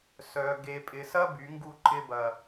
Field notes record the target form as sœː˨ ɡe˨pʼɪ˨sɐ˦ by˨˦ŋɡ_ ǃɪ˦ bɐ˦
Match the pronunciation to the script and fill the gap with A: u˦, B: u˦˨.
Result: B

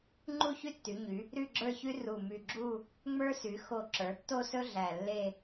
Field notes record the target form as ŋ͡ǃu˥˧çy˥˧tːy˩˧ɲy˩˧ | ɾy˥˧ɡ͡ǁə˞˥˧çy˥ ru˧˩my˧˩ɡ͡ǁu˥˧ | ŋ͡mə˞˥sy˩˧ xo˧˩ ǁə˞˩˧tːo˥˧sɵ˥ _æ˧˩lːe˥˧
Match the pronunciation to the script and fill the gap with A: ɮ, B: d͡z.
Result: A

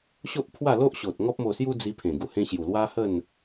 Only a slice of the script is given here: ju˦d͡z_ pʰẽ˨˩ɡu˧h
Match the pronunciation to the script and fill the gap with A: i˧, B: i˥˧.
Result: A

